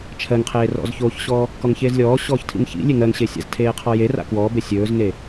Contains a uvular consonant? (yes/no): yes